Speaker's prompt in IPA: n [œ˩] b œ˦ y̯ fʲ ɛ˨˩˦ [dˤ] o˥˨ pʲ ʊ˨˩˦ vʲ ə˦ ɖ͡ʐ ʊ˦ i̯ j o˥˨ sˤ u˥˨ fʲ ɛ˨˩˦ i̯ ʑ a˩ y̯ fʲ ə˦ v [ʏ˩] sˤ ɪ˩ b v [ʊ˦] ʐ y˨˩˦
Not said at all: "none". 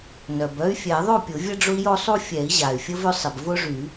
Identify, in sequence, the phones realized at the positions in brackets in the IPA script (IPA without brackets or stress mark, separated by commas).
œ˩, ðˤ, ʏ˦, ʊ˦